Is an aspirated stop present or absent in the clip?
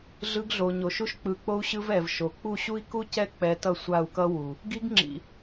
absent